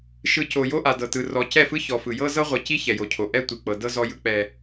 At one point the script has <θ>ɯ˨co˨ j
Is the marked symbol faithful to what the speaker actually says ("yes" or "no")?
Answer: no